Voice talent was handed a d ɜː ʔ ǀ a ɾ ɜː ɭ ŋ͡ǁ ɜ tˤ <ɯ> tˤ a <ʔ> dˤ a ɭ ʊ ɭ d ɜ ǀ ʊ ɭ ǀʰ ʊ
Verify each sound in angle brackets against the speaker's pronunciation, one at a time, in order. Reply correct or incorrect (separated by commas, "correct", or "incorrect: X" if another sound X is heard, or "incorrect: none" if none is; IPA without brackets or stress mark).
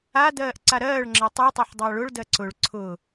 incorrect: u, incorrect: ħ